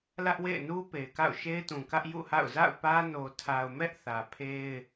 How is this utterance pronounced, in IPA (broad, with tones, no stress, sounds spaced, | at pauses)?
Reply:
l ä˦ ʔ w ḛ˦˨ ɪ̯ n u˦ p e˨ ɪ̯ k a̰˦˨ ʊ̯ ʃ e˦ ɪ̯ t ũ˨ k ä˦ ʔ j ṵ˦˨ h a̰˦˨ ʊ̯ z a̰˦˨ ʊ̯ p ä˦ n o˨ tʰ a˨ ʊ̯ m ɛ˦ ʔ θ ä˨ pʰ e˦ ɪ̯